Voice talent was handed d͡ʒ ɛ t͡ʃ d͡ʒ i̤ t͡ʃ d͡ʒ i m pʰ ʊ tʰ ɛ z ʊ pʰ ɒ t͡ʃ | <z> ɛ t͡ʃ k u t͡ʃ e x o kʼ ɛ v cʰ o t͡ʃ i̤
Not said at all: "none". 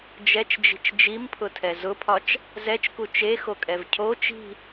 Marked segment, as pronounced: z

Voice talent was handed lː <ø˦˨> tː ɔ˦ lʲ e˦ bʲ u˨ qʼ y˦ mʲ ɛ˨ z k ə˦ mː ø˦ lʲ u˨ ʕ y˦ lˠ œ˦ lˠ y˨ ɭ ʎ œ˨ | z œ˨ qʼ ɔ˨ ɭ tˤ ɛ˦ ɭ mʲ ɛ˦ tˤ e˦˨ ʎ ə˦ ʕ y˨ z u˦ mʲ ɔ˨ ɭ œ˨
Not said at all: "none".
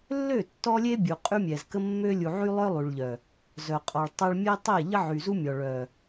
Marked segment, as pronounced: ø˦˨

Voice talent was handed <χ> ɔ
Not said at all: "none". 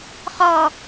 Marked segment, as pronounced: χ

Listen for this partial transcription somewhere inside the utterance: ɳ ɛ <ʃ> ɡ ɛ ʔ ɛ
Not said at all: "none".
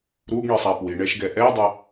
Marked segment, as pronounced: ʃ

